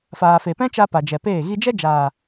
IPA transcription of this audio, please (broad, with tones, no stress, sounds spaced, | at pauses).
f aː˨ f e˨ p ɛ̃˦ t͡ʃ a˧ p a˨ d͡ʒ ɛ˨ p eː˦˨ ɣ i˦ d͡ʒ ɛ˦ d͡ʒ aː˨